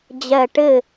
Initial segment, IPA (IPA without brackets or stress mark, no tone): d͡ʑ